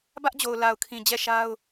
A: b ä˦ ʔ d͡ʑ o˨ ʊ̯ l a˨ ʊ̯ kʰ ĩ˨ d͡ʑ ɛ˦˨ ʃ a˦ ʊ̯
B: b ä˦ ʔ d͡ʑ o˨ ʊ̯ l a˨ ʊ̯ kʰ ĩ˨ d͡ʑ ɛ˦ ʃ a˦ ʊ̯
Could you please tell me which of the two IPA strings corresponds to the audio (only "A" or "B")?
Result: A